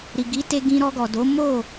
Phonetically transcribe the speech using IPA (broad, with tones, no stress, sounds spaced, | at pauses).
ɾ i˨ ɡ i˨˦ t e˧ ɡ ĩ˧ ɾ ɔ˧ ɡ ɔ˨ d o˨˦ m o˦˨